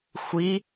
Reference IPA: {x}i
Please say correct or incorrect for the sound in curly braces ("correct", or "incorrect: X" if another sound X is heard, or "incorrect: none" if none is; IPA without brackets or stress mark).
incorrect: xʷ